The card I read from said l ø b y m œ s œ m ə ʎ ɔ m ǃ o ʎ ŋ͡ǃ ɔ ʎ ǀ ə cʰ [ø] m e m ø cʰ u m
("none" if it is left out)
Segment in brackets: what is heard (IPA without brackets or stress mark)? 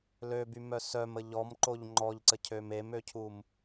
ø